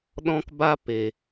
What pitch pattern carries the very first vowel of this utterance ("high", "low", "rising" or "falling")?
high